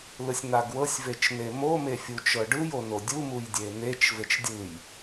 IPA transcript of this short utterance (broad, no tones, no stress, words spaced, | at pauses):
lɯsʲn̪aɡwɤsʲ vet͡ʃnemo mefʲut͡ʃɤɖɯj onodʲu mujdʲen̪et͡ʃ vet͡ʃdʲɯj